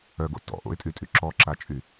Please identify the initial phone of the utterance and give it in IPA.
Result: œ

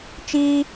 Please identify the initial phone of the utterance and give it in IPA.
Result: t͡ʃ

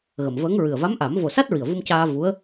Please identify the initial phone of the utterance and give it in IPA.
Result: ɣ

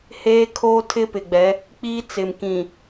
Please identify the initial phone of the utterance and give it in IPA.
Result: h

